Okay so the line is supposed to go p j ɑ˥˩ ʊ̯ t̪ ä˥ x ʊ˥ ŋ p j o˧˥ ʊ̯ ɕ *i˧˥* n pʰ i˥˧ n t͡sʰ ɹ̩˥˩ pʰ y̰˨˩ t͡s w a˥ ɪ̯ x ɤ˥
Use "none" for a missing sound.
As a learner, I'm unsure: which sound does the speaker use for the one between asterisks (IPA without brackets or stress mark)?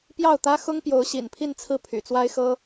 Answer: ḭ˨˩